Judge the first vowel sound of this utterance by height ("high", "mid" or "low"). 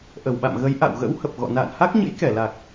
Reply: mid